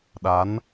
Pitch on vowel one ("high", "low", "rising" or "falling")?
rising